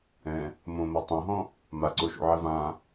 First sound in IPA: ɛ̃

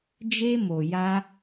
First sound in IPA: d͡ʒ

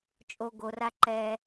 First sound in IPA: t͡ʃʼ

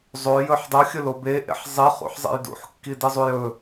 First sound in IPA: zˤ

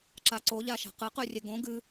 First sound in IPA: ǁ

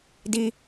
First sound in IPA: d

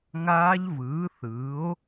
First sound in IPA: ŋ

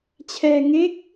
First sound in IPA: t͡ɕʰ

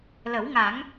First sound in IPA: l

